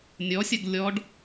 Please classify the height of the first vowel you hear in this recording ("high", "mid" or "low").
mid